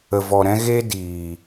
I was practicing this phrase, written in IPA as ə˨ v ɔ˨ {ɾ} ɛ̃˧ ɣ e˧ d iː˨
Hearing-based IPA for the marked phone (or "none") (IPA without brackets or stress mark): ɾ